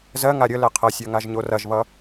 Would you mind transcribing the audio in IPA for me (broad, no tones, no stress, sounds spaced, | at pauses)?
z ɜ ŋ a ɾʲ ə l ɛ qʰ ɐ sʲ ɜ ŋ a ʒ ɲ o r ɐ ʒ β ʌ